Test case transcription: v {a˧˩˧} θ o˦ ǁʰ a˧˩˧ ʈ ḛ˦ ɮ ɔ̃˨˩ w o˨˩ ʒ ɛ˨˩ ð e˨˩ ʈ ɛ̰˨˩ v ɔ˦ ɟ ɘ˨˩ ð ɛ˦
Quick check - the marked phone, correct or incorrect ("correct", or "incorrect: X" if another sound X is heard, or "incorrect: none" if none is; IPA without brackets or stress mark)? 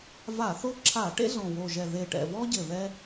correct